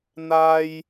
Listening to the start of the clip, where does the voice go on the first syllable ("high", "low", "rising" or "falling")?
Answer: high